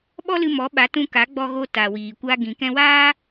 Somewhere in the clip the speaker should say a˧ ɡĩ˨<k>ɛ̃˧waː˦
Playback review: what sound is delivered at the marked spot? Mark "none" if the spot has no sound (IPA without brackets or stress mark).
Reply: k